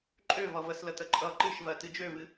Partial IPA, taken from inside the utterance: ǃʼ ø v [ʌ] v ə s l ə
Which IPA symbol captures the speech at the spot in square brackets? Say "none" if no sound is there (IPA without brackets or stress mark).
ʌ